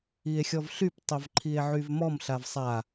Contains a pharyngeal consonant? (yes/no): yes